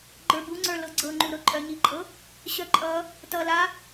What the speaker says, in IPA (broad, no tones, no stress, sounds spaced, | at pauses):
ɡ͡ǃ ə˞ b u ŋ͡ǀ ə˞ l ɤ ɡ͡ǀ ɤ ŋ͡ǃ u ɾ ɤ ǃʼ œ ɲ i ǃʼ ɤ | ɕ œ ǃʼ ʌ | t ʌ l a